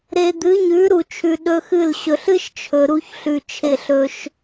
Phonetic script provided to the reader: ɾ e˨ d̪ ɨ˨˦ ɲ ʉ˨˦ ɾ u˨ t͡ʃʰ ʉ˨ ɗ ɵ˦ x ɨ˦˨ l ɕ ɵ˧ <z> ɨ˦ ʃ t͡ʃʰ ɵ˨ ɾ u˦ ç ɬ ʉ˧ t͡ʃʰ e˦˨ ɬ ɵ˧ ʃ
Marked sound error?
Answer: yes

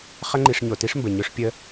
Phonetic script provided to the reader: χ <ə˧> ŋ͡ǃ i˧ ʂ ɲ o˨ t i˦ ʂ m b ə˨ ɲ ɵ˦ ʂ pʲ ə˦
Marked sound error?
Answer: yes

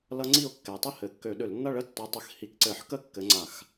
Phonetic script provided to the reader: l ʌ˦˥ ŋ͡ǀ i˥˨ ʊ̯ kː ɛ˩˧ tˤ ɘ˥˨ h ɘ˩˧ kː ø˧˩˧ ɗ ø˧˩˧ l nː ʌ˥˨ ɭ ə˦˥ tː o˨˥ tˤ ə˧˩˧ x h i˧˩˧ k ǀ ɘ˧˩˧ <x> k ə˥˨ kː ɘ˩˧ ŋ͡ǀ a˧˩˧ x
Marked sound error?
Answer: yes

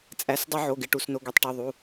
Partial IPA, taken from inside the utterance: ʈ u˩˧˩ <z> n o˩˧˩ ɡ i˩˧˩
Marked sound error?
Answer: yes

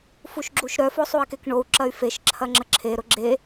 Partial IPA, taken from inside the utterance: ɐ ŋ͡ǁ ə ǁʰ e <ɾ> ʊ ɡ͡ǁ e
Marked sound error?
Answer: no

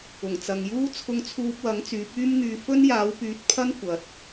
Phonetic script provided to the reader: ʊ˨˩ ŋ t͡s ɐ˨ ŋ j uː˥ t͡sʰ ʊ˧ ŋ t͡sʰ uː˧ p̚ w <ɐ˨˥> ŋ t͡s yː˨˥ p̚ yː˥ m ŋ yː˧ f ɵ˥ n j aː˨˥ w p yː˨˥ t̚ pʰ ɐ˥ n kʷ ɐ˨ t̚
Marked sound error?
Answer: no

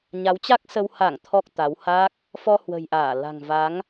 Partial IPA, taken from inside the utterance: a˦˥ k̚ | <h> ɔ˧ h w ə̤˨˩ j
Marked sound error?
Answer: yes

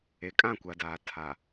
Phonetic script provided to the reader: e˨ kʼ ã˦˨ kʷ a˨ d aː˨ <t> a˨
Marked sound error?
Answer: yes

